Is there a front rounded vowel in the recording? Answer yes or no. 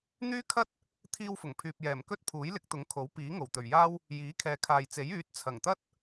yes